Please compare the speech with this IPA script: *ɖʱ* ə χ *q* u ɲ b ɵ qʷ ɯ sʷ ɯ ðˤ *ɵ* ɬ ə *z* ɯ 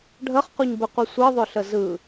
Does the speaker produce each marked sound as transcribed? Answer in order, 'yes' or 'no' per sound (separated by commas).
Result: yes, yes, yes, yes